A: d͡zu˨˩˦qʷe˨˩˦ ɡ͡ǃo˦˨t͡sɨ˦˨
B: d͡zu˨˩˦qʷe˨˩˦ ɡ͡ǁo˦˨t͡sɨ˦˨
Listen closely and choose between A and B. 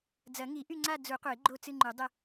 A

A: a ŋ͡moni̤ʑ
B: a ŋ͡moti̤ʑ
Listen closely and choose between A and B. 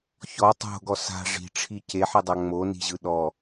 A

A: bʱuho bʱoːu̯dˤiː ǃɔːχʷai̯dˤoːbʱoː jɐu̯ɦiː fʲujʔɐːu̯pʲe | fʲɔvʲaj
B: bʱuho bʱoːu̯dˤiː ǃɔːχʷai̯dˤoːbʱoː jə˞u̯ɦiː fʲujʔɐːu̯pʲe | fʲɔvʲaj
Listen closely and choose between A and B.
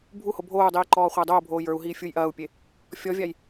B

